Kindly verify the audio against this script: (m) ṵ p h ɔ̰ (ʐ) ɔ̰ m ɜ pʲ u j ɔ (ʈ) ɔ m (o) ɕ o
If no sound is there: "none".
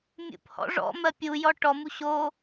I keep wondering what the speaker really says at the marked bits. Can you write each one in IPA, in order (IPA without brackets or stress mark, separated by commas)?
mʲ, ʐ, ʈ, u